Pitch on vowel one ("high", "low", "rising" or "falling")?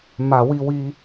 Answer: low